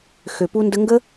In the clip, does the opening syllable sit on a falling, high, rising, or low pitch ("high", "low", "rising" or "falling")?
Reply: low